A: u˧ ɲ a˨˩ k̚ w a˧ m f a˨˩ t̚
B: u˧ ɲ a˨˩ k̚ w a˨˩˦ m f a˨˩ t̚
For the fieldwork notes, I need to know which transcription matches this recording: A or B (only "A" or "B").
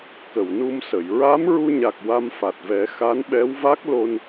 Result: A